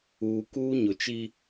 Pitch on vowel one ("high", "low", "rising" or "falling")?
low